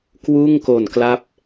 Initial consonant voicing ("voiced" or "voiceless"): voiceless